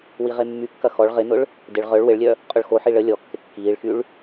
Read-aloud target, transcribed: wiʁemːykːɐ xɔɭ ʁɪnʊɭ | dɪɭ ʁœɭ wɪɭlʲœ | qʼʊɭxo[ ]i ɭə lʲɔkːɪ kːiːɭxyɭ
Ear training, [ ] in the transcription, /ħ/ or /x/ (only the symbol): ħ